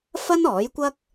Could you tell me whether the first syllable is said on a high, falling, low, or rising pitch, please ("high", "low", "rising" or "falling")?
high